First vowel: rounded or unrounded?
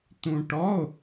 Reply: rounded